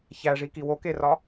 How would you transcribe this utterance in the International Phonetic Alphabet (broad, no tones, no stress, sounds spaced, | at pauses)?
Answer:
ç æ ʐ i k i w o k e r ɒ